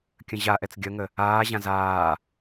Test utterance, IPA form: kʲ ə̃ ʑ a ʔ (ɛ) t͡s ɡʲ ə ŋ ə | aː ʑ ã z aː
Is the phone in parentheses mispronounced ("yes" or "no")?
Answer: no